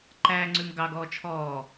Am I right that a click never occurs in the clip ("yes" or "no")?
no